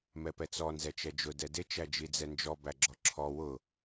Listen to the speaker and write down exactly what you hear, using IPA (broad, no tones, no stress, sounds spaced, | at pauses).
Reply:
m ɛ p ɛ t͡s ɔ n z ɛ t͡ʃ ɛ d͡ʒ ʊ d ɛ d ɪ t͡ʃ æ d͡ʒ i d͡z ɛ n d͡ʒ ɔ b æ ɡ͡ǁ ɔ ǁʰ ɔ w ʊ